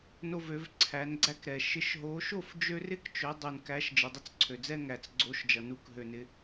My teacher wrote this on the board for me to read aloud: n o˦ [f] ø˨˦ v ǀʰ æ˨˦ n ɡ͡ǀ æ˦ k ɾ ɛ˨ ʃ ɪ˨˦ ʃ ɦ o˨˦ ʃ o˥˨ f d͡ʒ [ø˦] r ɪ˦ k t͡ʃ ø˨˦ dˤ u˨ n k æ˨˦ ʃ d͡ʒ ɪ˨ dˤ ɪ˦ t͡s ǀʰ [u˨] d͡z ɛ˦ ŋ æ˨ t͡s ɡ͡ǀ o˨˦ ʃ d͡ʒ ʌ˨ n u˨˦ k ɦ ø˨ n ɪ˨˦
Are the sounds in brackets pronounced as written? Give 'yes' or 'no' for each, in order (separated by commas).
no, yes, no